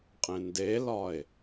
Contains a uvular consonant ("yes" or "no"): yes